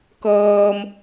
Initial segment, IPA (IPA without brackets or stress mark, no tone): k